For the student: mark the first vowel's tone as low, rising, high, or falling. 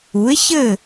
rising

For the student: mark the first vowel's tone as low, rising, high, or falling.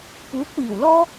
rising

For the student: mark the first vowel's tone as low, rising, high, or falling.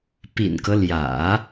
low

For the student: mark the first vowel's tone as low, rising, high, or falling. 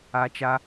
high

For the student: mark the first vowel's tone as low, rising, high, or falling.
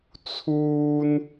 high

